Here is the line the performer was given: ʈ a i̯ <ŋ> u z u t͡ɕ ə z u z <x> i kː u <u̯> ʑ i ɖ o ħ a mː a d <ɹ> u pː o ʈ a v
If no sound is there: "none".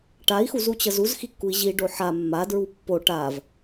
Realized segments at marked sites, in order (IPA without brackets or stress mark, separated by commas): x, x, i̯, ɹ